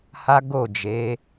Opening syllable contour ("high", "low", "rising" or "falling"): high